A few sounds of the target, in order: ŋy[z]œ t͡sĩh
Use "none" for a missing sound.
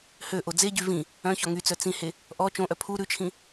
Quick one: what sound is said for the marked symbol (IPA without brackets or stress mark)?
t͡s